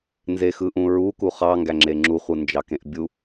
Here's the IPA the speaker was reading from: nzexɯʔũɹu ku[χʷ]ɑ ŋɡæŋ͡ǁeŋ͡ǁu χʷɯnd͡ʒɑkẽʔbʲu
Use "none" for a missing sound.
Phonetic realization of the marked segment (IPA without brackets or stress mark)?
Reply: χ